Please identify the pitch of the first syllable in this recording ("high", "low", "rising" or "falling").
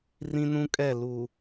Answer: high